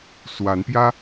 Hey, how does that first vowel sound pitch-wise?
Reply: rising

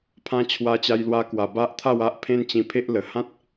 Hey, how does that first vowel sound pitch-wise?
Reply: high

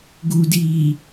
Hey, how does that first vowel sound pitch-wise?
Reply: low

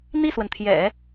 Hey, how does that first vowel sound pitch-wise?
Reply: falling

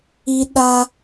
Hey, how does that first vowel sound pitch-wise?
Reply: high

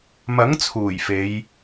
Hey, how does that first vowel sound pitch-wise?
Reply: rising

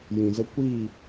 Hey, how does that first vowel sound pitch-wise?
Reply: low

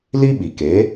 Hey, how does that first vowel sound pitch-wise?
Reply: high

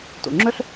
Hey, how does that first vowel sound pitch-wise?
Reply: low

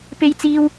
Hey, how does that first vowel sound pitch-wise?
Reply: high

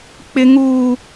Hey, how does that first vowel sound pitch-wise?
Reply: high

